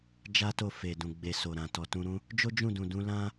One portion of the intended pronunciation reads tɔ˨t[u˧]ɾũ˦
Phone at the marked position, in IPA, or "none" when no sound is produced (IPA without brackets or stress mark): ũ˧